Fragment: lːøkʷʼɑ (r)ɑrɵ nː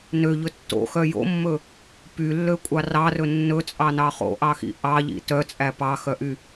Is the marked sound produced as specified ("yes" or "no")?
yes